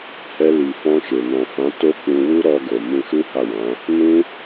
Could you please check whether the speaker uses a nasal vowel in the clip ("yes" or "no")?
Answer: yes